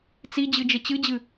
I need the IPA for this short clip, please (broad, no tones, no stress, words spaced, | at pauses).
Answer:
t͡sid͡ʑɨd͡ʒə t͡ɕɨd͡ʑɨ